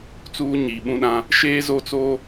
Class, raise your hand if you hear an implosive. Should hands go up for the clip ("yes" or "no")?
yes